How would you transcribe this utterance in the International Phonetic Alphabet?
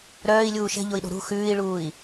ɾ œː i̯ lʲ uː ʃ ɛ̤ ʎ o i̯ ɗ o̤ ɾ ṳ x ʉː i̯ ɭ uː i̯

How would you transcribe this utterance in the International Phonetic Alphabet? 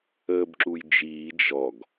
əː b ǁ u j d͡ʒ iː d͡ʒ ɔ ɡ

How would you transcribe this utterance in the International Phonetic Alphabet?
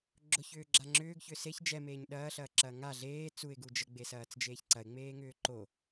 ɡ͡ǁ ʊ ç ʏː ɡ͡ǁ a ŋ͡ǁ ʏː ɡ ç ʏː s e ç d͡ʒ ɛ m eː ɲ ɗ ɐː ɬ ɐː ǁ ɐː ŋ a ɮ eː t͡s u ɪ̯ ɡ u d͡ʒ ə ɡ͡b e s ɐː t͡s d͡ʒ eː ç ǀ ɐ ɪ̯ ŋ͡m eː ŋ ʏː ǃ o

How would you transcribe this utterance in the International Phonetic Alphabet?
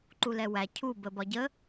ǃ u l ɛ w æ cʰ u b ə b ɒ ɟ ə

